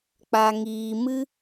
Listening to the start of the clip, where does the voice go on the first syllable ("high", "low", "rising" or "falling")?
low